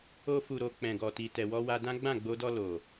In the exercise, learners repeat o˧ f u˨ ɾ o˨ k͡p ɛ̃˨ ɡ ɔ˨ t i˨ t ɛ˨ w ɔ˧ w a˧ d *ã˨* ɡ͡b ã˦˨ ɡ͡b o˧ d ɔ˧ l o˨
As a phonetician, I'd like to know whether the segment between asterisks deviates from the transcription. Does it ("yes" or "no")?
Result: yes